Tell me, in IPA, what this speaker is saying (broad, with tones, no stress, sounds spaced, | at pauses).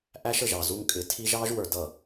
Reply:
ʔ æ˦ ʃ ə˨ ʒ ɑ˨ z u˦ ŋ kʼ ɪ˨˦ tʰ i˦ ʒ ɑ˦ ʒ w ə˞˨ d ʌ˨